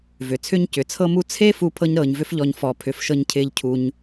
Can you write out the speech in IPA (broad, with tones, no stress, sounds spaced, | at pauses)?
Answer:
v ʏ˨ t͡sʰ ʏ˦ ɲ c ʏ˨˦ t͡sʰ ɤ˦ m u˦ t͡sʰ e˦ f u˧ pʰ ɤ˧ ɲ ɾ ɤː˨ ɲ v ʏ˧ f ʎ ɔ˨ ɲ f ɔ˨ pʰ ʏ˨˦ f ʃ ɤ˧ ɲ cʰ ɪː˧ ʎ cʰ u˧ ɲ